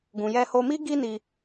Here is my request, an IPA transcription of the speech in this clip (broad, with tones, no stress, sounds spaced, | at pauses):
ɡ ũ˨ j ɛ˧ h o˧ m i˦ ɡ i˦ n i˧